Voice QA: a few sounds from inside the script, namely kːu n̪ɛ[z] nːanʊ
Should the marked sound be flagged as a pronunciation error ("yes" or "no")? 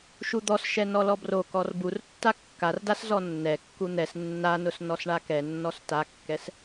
yes